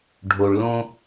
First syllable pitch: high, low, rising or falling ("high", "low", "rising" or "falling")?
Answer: low